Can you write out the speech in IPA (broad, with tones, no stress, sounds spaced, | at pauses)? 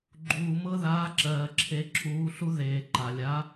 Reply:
ɡ͡ǃ uː˨ m ɤ˥ ð aː˧˥ ǁ ɜː˨ ǁʰ e˧˥ ǁʰ uː˧˥ ɬ u˥ ð eː˨ ǃ a˨ lʲ a˧˥